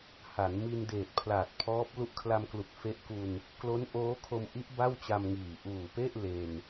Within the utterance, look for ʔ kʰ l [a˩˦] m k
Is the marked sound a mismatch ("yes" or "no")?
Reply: yes